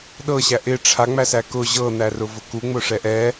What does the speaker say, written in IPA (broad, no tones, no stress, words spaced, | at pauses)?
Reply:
ɗɤɕæ ʔɪ ʈ͡ʂʰaŋ͡mæsæ kʊ ʑɤn̪ærʊvʊ kuŋ͡mʊʂɛ ʔɛ